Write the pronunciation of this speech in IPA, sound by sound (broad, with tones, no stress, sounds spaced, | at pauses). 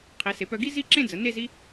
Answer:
qʰ i˩˧ s e˩˧ p œ˧ ɡ i˥ z i˥˧ ǁ ẽ˥˧ d͡z ə˩˧ n e˥˧ z i˥